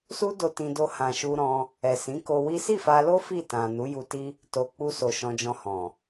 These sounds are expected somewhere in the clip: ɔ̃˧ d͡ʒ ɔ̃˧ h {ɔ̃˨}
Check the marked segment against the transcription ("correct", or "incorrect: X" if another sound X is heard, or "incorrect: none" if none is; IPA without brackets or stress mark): correct